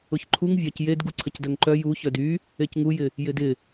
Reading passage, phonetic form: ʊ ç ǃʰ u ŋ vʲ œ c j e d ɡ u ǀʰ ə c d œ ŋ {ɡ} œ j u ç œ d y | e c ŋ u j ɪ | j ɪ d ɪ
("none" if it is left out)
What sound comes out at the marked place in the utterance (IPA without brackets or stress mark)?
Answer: ǃ